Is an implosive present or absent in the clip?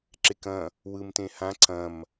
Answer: absent